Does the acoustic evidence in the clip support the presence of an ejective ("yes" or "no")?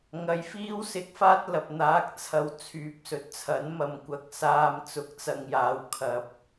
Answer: no